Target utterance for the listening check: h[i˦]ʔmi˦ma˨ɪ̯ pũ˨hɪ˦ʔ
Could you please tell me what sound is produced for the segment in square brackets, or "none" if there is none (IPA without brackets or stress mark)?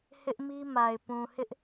ɪ˦